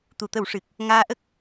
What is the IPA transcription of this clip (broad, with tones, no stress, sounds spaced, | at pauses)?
t̪ u˨˩ t̪ ə˨˩˦ w ʂ ɨ˨˩ k̚ | ŋ aː˧ ʔ ə˦˥ k̚